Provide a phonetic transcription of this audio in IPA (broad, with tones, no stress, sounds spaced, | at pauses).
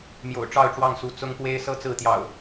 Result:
m j o̰˨˩ ʊ̯ ʈ͡ʂ ɑ˥˨ ʊ̯ ʈ͡ʂ w ɑ˥˨ ŋ s u˨˦ t͡s ʊ˦ ŋ p w e˦ ɪ̯ s ɤ˦ t͡s ɹ̩˥˨ t̪ j ɑ̰˨˩ ʊ̯